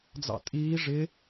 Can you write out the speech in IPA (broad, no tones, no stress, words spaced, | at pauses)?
d͡zɑ̰tʼiː ʐɪ